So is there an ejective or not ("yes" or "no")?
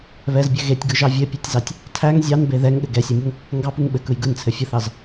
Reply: no